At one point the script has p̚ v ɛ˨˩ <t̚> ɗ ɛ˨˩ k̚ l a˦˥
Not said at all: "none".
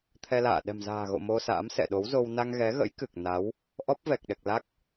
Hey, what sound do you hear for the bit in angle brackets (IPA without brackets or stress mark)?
k̚